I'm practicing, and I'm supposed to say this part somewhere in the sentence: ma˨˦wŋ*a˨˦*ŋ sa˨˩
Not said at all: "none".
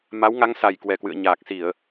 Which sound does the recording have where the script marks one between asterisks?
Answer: a˨˦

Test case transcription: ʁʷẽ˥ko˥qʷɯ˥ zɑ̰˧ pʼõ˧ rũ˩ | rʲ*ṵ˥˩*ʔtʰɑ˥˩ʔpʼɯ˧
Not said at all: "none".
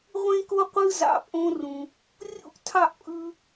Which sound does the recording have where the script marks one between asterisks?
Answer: ṵ˥˩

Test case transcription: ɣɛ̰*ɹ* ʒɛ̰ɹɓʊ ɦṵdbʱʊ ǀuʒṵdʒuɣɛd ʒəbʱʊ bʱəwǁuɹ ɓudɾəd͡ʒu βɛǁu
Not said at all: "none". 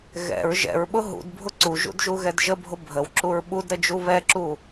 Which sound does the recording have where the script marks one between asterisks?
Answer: ɹ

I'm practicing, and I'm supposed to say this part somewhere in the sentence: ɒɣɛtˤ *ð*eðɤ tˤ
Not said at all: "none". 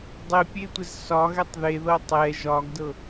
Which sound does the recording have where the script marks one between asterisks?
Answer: ð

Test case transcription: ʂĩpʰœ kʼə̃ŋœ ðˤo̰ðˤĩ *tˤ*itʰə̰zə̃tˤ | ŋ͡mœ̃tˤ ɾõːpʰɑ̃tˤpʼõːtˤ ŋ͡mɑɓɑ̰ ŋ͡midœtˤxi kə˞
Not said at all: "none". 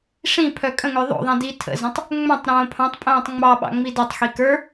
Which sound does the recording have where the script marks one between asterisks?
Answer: d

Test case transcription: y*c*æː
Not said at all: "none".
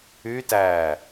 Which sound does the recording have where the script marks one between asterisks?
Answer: t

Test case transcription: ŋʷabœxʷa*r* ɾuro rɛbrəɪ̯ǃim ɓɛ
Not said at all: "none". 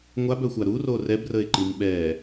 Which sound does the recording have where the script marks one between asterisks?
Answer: none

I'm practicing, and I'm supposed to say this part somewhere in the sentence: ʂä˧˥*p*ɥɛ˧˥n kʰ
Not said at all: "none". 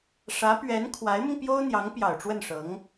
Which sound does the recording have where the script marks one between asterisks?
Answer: p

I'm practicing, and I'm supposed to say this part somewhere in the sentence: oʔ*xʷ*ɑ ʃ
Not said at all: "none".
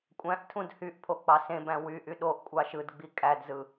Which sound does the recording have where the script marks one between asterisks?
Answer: kʷʼ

